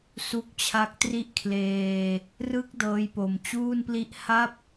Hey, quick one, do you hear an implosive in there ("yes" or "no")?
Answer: no